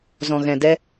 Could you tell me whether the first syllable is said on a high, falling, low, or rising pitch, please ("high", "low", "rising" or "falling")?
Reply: low